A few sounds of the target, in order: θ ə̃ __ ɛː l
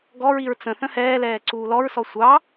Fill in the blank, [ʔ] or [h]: h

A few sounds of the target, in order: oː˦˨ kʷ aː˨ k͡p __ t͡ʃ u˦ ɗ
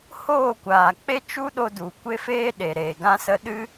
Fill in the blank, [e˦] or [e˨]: e˦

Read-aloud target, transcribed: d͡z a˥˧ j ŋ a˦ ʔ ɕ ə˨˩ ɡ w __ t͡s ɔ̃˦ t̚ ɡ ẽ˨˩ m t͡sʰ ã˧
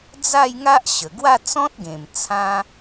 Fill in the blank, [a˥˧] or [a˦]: a˥˧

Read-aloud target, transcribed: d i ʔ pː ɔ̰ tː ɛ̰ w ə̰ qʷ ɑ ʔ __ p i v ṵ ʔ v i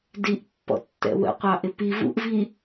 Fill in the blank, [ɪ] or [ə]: ɪ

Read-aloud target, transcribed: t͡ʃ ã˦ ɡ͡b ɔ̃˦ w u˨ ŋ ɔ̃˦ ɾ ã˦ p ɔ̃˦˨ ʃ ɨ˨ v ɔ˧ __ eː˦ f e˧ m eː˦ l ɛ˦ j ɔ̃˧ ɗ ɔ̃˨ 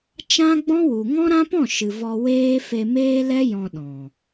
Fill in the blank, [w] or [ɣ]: w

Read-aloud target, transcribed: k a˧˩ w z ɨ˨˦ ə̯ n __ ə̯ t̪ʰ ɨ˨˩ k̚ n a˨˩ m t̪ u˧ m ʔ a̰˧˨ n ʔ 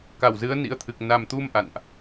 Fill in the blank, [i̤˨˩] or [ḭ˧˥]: ḭ˧˥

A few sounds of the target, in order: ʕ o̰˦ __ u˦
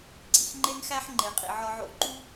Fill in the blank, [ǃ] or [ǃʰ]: ǃ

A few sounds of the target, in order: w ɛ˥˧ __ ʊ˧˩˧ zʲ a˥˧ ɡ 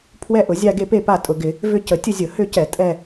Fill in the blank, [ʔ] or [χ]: ʔ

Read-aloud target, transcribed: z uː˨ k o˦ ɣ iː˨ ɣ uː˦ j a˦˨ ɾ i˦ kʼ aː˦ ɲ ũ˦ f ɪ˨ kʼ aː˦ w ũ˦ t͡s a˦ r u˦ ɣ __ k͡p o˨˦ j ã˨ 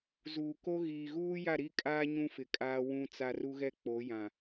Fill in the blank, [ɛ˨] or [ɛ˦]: ɛ˦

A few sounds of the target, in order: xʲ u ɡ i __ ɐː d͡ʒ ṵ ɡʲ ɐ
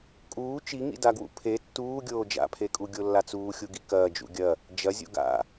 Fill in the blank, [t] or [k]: k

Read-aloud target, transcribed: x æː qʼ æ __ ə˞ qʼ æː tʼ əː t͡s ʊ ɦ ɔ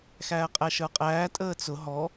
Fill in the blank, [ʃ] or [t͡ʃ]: ʃ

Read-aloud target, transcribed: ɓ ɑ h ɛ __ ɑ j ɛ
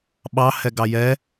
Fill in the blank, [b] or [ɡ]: ɡ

